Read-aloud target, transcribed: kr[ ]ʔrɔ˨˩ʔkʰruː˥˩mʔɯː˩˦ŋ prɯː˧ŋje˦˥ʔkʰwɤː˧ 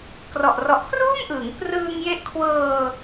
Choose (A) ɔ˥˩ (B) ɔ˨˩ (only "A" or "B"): B